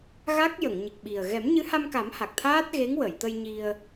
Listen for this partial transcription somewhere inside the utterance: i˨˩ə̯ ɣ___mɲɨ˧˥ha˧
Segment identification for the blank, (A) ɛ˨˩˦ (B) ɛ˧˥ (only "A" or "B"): A